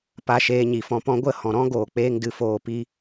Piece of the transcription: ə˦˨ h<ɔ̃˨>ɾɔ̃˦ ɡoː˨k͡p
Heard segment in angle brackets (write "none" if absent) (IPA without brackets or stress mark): ɔ̃˨